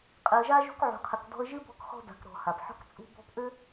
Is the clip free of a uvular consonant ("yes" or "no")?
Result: no